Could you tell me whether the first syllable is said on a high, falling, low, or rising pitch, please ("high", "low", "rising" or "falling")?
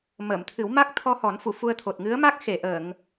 low